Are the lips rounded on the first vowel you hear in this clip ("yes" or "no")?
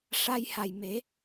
no